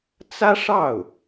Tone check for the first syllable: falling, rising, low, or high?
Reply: high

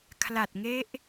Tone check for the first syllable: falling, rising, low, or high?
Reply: low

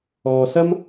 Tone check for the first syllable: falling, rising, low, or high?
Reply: low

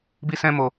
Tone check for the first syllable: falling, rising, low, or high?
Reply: high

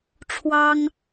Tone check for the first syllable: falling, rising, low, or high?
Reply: high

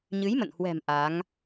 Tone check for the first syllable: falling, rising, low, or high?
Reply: rising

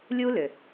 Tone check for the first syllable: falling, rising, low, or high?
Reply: high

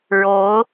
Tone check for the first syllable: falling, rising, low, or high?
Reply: rising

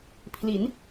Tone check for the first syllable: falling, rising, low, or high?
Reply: rising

